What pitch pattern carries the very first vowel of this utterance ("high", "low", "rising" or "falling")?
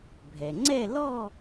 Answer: low